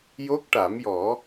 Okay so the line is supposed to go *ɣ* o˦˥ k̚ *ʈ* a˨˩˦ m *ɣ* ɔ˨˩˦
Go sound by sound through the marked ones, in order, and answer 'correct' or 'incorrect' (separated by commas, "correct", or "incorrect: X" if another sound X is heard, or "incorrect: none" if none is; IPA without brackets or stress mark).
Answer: incorrect: j, correct, incorrect: j